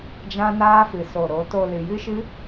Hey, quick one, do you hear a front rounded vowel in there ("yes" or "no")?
no